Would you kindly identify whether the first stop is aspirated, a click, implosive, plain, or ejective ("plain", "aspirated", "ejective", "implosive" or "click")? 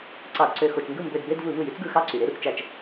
click